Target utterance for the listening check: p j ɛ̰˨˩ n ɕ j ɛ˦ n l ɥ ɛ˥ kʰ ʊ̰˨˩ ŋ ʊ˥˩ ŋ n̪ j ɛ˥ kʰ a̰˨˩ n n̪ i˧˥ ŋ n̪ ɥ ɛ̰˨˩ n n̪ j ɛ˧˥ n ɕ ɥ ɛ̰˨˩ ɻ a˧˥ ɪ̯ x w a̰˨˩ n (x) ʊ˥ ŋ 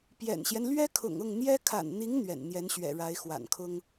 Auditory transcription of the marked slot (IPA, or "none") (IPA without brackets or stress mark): kʰ